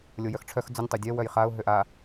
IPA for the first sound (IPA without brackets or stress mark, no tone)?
lʲ